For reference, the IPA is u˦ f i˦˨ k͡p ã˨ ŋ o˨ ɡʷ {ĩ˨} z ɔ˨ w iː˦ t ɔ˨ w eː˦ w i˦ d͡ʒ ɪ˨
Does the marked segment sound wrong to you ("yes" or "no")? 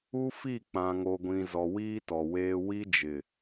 no